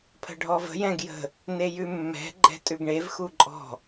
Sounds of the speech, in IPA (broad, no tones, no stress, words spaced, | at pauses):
pʰə̤ɖʱɔvə̤ jɛ̃ɡjə̤ | nejʉmːɛ̤ ɡ͡ǃɛ̤tʼʉɡɳev xuǃʼɔ̤